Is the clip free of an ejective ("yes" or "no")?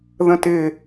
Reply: yes